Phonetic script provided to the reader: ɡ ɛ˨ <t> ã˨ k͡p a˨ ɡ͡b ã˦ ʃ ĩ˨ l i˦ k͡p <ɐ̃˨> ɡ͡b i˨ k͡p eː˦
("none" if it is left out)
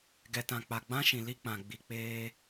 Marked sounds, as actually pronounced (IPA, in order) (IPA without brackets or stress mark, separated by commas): t, ã˨